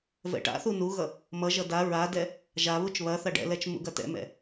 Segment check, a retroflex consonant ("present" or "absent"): present